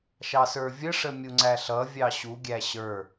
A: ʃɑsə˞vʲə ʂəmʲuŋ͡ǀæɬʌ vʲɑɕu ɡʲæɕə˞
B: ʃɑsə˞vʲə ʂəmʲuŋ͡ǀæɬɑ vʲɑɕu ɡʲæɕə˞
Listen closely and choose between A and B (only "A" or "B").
A